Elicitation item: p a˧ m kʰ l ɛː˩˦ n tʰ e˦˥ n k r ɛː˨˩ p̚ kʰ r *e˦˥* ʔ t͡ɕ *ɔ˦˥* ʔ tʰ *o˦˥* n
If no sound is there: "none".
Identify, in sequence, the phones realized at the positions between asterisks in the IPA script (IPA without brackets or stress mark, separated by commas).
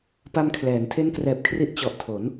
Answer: i˦˥, ɔ˨˩, o˩˦